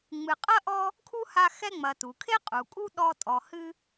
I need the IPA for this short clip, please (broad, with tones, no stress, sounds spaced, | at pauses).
ŋ͡m ɨ˨ qʼ ɐ˥ ʔ ɔ˦ | kʰ u˥ h a˦ x ɛ˦ ŋ͡m ɐ˨ t u˩ kʰ e˥ qʼ u˩ kʼ u˦ ɗ ɔ˦ tʼ ɔ˨ h ɨ˥